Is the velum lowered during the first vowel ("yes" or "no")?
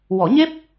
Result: no